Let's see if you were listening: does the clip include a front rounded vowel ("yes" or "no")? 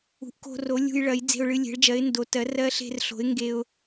no